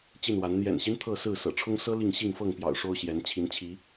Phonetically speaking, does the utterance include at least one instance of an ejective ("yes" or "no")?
no